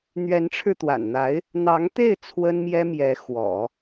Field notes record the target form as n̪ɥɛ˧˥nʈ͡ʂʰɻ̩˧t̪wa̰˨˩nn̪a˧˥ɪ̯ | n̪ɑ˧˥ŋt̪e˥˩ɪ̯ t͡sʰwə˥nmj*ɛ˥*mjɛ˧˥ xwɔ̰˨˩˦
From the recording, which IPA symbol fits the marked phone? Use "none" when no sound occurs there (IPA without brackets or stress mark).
ɛ˥